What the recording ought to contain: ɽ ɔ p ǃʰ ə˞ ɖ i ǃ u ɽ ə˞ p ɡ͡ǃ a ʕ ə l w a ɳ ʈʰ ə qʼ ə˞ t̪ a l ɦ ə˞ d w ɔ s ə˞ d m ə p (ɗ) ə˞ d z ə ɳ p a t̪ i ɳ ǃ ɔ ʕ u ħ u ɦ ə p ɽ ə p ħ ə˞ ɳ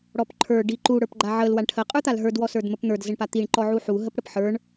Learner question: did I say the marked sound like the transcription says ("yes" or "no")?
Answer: no